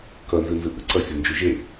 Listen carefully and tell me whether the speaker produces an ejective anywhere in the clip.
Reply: no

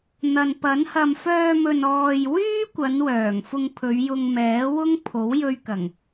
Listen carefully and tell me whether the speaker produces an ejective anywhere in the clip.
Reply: no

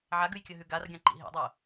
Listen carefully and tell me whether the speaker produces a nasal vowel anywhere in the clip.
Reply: yes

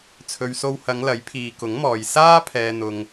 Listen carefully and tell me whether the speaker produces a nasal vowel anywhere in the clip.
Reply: no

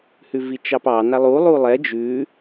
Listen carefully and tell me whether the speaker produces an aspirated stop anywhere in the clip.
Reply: no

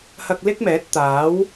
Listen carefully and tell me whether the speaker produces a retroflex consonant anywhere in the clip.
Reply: no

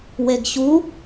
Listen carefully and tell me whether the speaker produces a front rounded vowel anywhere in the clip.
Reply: no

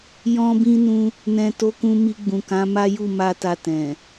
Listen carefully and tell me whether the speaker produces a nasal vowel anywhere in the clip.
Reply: yes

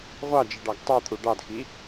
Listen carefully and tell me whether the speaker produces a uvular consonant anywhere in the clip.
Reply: yes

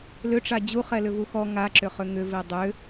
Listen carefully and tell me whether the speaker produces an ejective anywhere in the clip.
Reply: no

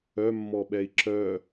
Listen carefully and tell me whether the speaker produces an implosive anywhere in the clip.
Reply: yes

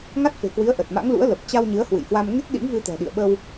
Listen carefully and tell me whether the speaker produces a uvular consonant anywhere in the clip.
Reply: no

